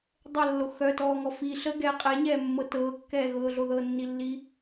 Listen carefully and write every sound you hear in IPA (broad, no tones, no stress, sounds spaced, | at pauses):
dˤ ə lː o x œ t ɔː ŋ ɔ f i ɬ ə ɡ ɛː qʼ ɛ ɲ ɛː mː ɤ t ɤː kː ɛː ɣ ɤː ɮ o ð ɤ nː i lː i